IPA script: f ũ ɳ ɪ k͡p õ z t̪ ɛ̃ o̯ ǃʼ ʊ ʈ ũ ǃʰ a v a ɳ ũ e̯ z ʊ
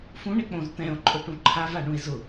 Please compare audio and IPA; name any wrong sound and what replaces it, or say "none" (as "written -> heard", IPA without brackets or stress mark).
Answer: none